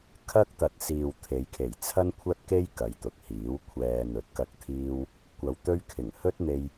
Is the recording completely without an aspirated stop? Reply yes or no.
no